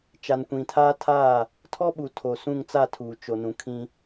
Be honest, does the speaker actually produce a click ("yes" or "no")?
no